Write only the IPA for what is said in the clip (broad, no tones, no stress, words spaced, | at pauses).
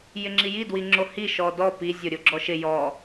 jɪŋ͡ǁiji dwiŋ͡ǁohi ʃɔdɔ pi zʲoɾʲoɡ͡ǁɔʃɪ jɔ